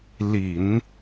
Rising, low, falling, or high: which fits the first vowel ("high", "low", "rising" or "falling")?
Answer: low